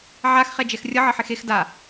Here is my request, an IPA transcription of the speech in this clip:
ʕ a x χ ɛ d͡ʒ ɛ x rʲ ʌ ʕ ʌ ħ e x e x d a

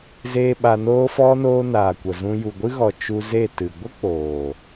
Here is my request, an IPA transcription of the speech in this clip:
z eː˦ ɓ a˧ n oː˧ f ɔ˧ n oː˧ n aː˨ kʷ ə˨ z ũ˧ j u˨ ɡʷ ɨ˦ ɣ ɔ˨ t͡ʃ u˧ z e˦˨ t ɨ˨ ɡʷ ə˦ k͡p oː˨

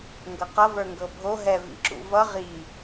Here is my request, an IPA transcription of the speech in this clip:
ŋ ɡ ɤ q ʌ v ə˞ ŋ ɡ ɤ bʱ o ɦ ɛ v ḭ ǁ ṵ v ʌ ʁ i

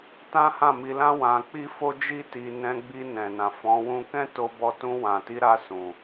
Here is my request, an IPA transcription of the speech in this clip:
t ã˦ h ã˦˨ m i˧ l ã˦ w ã˧ k͡p i˦ f o˦ d͡ʒ i˦ t i˧ n ɛ̃˧ ɡ͡b i˧ n ɛ̃˨ n ã˨ f ɔ̃˨˦ w ũ˦ k ɛ̃˦ t o˧ b ɔ˧ t ũ˧ w ã˨ t i˧ ɾ a˧ s ũ˨

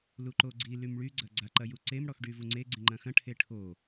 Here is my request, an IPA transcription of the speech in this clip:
l u ǃ o ɡ͡ǀ i l y m ɭ y ɡ͡ǀ ɐ ɡ͡ǀ a ǃ ɐ j u ǀ e m ɽ ɔ x ɖ y v u ŋ͡ǀ e ɡ͡ǀ ĩ ŋ͡ǃ ɐ̃ x ɐ̃ ʈʰ e ʈʰ o

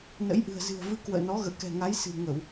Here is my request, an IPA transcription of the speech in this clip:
n ə̰˧˥ j ʔ ɨ̤˨˩ ə̯ z ɨ̤˨˩ ə̯ v ɨ˧ k w ə̰ː˧˨ n ɔ˨˦ ɣ ə̰ː˧˨ k ɛ̤˨˩ ŋ a˨˦ j s ɨ̤˨˩ ŋ ə˧˩˨ w

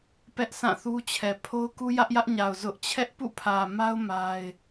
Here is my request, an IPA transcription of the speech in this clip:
p ɛ˦ ʔ s ã˦˨ θ u˦ t͡ɕʰ ɛ˨ pʰ o˦ ʊ̯ k u˦ j ä˦ ʔ j ä˦ ʔ ɲ a˨ ʊ̯ z ʊ˦ ʔ t͡ɕʰ ɛ˦ ʔ p ṵ˦˨ pʰ ä˨ m a˦ ʊ̯ m a˦ ɪ̯

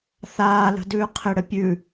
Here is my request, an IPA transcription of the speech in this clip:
θ aː l ə̤ d ʉː qʰ ɪ ɽ ə pʲ ʉ

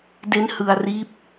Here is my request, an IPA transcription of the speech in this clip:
d e˦˥ n h ɯ˧ a̯ r iː˦˥ p̚

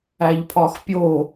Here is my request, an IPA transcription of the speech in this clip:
æ ʎ pʰ ɒ x pʲ o

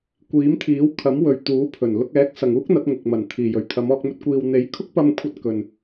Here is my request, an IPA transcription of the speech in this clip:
kʷ iː˨˥ m t̪ʰ iː˨˥ w kʰ ɐ˨˥ m w ɵ˨ ɥ t̪ uː˨˥ pʰ ɵ˨˩ n l ʊ˧ k̚ ɛː˨˥ k̚ s ɐ˨ ŋ uː˥ k̚ n̪ ɐ˨˥ t̚ ŋ ʊ˨ k̚ m ɐ˨˩ n t̪ʰ iː˨˩ j ɵ˨˩ ɥ t̪ʰ ɐ˨˧ m ɔː˧ k̚ m ɵ˧ t̚ kʷ iː˨ w n̪ e˨˥ j kʰ ʊ˥ k̚ p ɐ˧ m kʷʰ ɐ˧ t̚ k ɵ˨ n

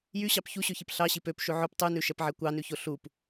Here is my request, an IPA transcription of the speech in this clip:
j y ɕ ɑ p ç u ɕ ø ç i p ɬ ɑ ɕ i p ø p ʃ ʉ ʕ ɵ p tˤ ʉ n ʉ ʃ ɛ p ʕ ɛ kʷ ɑ n ʉ ç o ɬ u p

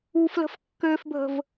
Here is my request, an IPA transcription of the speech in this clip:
u f l ə̤ f kː ø f bʱ ə̤ v

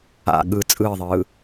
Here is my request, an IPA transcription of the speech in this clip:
a̰ ɠ ɯ t͡sʼ ɯː ðˤ ɯː

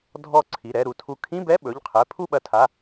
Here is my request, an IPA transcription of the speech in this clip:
dʱ ɔ˧˩ ǀʰ i˩˧˩ ɾ ɛ˥˨ ɾ u˩˧˩ tʰ u˧˩ kʰ ĩ˧˥˧ b ɛ˧˥˧ ɓ ɵ˩˧˩ ʎ qʰ ɛ˩˧˩ pʰ u˥˨ ɓ ɐ˧˩ tʰ a˩˧˩

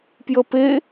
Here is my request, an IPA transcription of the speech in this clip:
p j ə p e

